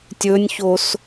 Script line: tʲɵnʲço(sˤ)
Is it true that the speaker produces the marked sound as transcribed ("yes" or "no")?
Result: no